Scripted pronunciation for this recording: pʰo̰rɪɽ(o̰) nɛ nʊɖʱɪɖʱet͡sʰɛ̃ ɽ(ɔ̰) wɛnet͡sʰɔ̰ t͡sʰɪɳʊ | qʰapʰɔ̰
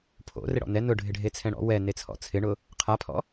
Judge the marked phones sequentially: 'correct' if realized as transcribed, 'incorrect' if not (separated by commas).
incorrect, correct